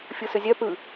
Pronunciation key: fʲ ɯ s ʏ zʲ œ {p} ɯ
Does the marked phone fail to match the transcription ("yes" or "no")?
no